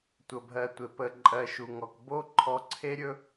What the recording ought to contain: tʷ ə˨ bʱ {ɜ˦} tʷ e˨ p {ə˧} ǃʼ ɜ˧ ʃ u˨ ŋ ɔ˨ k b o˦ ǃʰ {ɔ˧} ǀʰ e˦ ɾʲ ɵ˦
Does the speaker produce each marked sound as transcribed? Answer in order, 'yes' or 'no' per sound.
no, yes, yes

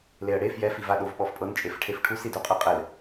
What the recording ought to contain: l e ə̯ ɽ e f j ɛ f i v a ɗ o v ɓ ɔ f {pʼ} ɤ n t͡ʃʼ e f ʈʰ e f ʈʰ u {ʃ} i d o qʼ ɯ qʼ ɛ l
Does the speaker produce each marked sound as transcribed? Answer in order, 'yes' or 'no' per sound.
yes, no

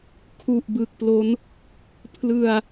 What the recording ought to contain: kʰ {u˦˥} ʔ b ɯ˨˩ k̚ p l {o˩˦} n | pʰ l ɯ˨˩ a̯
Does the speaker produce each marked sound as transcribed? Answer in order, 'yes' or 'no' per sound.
no, no

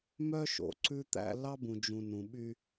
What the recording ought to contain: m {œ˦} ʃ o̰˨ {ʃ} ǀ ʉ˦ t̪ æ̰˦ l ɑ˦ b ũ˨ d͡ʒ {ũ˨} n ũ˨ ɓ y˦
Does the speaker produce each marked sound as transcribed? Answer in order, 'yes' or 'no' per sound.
yes, no, yes

